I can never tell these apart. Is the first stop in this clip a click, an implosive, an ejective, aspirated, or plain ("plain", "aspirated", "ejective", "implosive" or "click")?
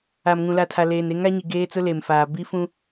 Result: aspirated